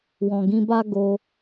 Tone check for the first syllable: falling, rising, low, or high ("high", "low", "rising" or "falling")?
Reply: low